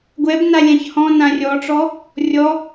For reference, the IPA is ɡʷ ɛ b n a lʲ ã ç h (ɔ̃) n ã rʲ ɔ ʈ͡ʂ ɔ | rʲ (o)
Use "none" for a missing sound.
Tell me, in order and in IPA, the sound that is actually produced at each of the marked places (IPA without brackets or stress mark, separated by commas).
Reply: ɔ̃, ɔ